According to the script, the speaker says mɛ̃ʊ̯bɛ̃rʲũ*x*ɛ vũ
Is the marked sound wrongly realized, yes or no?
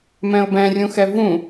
no